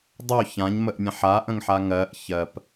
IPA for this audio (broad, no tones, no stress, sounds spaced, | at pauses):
dˤ o ç ã ɲ m ə ʔ mʲ ã ħ a ʔ ə̃ ŋ ħ a ŋ ɜ ʔ ç ɜ p